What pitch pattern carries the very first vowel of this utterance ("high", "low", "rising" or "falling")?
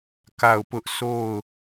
falling